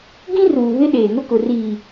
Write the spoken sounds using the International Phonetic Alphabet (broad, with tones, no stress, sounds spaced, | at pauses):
ɡ ĩ˦ r uː˨ β ɪ˦ ɗ eː˨ ŋ ʊ˦ k ʊ˨ r iː˨